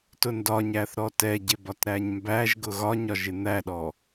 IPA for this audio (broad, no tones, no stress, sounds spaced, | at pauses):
t ʊ n d ɒ ɲ æ θ ɾ ɔ t ɛ ɟ ɪ b ɒ t ɾ æ ɲ m b æ ʒ ɡ ʊ ɣ ɒ ɲ ɒ ʒ ɪ n̪ æ ɗ ɔ